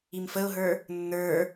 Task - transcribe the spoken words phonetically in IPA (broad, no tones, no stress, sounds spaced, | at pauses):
i m f ə ʊ̯ ɦ ə˞ | nː ə˞